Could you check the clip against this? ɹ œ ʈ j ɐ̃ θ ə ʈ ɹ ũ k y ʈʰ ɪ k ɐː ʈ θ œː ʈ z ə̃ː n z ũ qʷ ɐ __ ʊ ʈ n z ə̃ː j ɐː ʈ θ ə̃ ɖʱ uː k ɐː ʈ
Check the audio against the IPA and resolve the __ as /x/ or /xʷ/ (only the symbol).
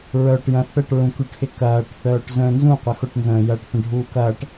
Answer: x